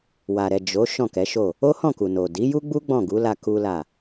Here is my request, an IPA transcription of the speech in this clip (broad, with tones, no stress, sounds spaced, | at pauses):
w a˨ ɾ ɛ˨ d͡ʒ o˨˦ ʃ ɔ̃˦˨ k ɛ˨˦ ʃ o˦˨ | o˦ h ɔ̃˦˨ k u˨ n o˨ d i˨˦ j u˦ ɡ͡b u˦ ɡ͡b ɔ̃˦˨ ɡ u˨˦ l a˧ k u˦ l a˦˨